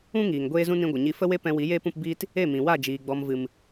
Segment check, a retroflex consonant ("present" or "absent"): absent